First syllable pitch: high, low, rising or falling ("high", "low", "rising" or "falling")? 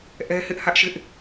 high